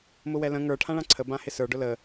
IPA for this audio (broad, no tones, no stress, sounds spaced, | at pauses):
m ʊ w ɛ l ə̃ ŋ ə˞ ʈʰ ã ɭ ã ǀʰ ə b ã h ɪ s ə˞ ɖ ʊ l ə